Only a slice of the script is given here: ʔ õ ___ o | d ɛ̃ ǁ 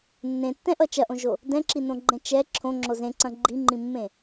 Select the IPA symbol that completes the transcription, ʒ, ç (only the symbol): ʒ